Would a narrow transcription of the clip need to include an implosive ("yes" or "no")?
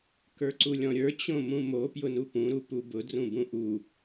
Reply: no